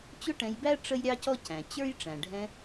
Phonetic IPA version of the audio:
t͡ɕ ʊ˥ ʈ ɛ̃˧ j b æ˥ ʈ͡ʂ ə˥ j ɾʲ ɑ˥ c ɔ˥ c æ̃˩ t͡ɕ ə˞˥ j ʈ͡ʂ æ̃˩ ɖʱ ɛ̃˧

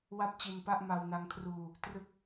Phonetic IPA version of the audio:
w a˥˩ p̚ t͡ɕ i˧ n p a˥˩ ʔ m a˧ w n a˦˥ ŋ kʰ r uː˧ | t r ɯ˦˥ k̚

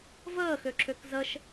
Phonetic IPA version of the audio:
v əː x ø ǁ ø k z ə ʃ

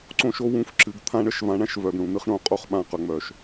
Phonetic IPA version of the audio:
ǀ õ˦ ʃ o˦ w ũ˦ f ǁ ɨ˧ ɡ t̪ʰ ã˦ ɳ ə˦ ʃ v ã˧ ɳ ã˦ ʃ v œ˨ ɡ ɳ ũ˨ n̪ ɨ˦ χ ɳ õ˧ qʼ o˧ χ ɓ ã˧ q œ˨ ŋ͡m œ˨ ʃ

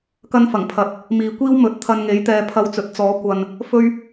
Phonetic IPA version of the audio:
k ɐ˥ n f ɐ˨˩ ŋ pʰ ɐ˨ t̚ | m iː˨ kʷ iː˥ w m ɵ˨˥ t̚ t̪ʰ ɐ˧ n ŋ e˨˥ j t̪ ɛː˨˧ pʰ ɐ˧ w t͡s ɵ˨˥ t̚ t͡s ɔː˨˥ kʷ ɐ˨ n | f ɵ˥ ɥ

